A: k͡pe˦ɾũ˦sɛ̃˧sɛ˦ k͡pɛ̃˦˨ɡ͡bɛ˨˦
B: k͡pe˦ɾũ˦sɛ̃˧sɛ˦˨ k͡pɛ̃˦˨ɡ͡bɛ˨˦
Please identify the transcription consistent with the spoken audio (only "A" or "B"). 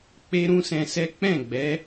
A